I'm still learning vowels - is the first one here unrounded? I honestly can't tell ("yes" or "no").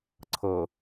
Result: yes